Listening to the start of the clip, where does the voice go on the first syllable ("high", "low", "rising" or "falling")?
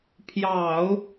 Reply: low